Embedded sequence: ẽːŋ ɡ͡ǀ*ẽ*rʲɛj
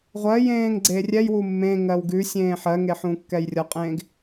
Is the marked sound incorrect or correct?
incorrect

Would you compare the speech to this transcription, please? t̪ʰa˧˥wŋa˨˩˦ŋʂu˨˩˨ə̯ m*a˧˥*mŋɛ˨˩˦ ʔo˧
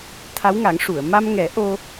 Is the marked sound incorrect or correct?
incorrect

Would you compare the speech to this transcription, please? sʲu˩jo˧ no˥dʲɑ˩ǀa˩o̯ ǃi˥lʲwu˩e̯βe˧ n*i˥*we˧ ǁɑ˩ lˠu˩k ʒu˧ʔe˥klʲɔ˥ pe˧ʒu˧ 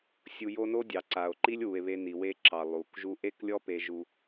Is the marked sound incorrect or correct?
incorrect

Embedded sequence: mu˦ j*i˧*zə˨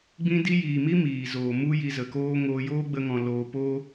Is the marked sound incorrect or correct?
correct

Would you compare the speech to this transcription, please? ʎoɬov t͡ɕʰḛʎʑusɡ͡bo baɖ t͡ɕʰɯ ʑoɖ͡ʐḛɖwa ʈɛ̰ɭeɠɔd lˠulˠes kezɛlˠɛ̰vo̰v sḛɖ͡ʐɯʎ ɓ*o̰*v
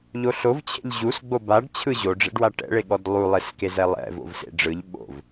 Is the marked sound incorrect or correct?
correct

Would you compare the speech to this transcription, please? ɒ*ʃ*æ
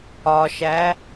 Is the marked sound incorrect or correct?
correct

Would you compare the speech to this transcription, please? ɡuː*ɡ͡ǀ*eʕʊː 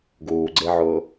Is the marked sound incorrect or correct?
correct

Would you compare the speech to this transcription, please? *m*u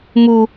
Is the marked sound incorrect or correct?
correct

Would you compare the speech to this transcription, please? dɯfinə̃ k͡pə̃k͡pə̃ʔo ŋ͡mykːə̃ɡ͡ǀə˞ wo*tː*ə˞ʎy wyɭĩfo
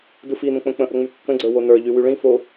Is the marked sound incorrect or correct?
incorrect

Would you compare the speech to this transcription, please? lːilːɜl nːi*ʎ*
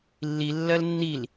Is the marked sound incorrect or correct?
incorrect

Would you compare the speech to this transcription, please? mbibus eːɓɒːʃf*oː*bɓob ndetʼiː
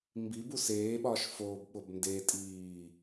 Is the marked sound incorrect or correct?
correct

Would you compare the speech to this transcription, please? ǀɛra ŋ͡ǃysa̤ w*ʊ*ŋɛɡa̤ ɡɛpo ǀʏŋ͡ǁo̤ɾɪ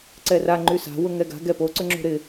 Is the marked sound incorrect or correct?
correct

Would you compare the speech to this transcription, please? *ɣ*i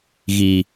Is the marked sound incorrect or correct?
correct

